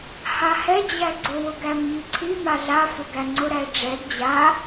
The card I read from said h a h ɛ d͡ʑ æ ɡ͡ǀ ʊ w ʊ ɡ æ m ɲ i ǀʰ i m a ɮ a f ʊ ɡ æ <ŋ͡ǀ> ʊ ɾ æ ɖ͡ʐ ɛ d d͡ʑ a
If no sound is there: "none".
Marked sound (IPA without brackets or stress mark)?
ŋ͡ǀ